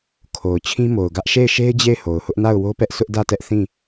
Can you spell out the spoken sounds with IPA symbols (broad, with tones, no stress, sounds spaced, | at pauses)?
kʰ o˨ ʊ̯ t͡ɕʰ ĩ˦ m o˨ ʊ̯ ɡ ä˦ ʔ ʃ e˦˨ ɪ̯ ʃ e˦ ɪ̯ d͡ʑ e˦˨ ɪ̯ h o˨ ʊ̯ h ʊ˦ ʔ n a˦˨ ʊ̯ w o˦ p ɛ˦ ʔ sʰ ʊ˦ ʔ d ä˦˨ t ɛ˦ ʔ θ ĩ˦˨